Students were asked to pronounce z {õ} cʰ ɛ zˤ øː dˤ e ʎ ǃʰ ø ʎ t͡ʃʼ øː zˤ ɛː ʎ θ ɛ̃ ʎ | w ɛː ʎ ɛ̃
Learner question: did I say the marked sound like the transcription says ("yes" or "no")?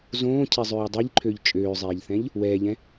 no